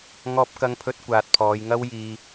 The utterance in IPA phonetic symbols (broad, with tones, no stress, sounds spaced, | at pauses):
ŋ ɔː˥ p̚ k ɐ˥ ŋ pʰ ɵ˥ t̚ kʷ aː˨ t̚ pʰ ɔː˨˧ j ŋ ɐ˥ w j iː˧